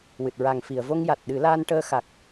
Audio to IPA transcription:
wɨ˨˩t̚ ɹa˨˩ŋfi˨˩˨ə̯vo˧ŋja˨˩t̚ ɗɨ˨˩˦laː˧nʈəː˧ xa˨˩k̚

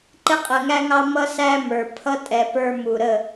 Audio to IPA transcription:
ǃɪ˧qʼə˨ŋæ˧ŋɑ˧ mʌ˧sæ˧ mə˞˨ pʰʌ˧tʼɛ˨ pə˞˧mu˨ ɾə˦˨

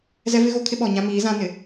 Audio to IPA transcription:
zɛ˦vɪ˦ɣo˦kʰɪ˦ ɓɔ˨ɲã˦miː˨˦ zã˦nɪ˨

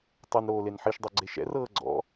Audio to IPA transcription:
tˤɤnɾoː lenħiʃdˤo ɡ͡ǀeʃɛ̰rɤː ɡ͡ǀɔ̰

